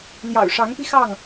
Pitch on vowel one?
low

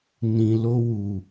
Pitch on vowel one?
low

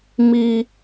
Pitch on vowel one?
high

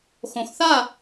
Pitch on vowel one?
low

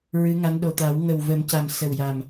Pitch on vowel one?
rising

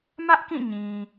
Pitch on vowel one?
high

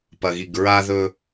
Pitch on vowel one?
low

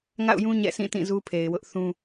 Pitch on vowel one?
falling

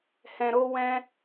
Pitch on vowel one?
low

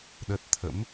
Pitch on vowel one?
low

